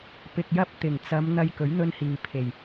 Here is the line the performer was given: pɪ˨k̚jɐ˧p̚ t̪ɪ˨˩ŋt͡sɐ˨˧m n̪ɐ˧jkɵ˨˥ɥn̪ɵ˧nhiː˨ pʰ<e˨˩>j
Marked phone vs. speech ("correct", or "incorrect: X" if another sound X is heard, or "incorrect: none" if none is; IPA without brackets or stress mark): correct